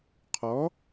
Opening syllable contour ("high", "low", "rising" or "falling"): rising